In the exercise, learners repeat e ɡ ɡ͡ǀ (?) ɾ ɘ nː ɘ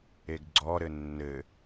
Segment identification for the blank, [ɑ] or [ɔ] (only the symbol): ɔ